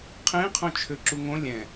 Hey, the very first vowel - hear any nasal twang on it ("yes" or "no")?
yes